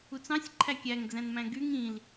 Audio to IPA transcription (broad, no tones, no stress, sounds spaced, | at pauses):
u t͡s ɑ̃ sʲ ǃʰ æ kʲ æ ŋ d͡z æ̃ n m æ̃ ɡ y ŋ ĩ l